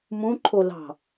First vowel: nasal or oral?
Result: nasal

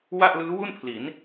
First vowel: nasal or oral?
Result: oral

